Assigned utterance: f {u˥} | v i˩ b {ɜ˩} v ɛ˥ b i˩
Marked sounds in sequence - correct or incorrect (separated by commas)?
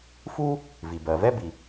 correct, correct